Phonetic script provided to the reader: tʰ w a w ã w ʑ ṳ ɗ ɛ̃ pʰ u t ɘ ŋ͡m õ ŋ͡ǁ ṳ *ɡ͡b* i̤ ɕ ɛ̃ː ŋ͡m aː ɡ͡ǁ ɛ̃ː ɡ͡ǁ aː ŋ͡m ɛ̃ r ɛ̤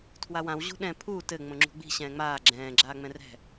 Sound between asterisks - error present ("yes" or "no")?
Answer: no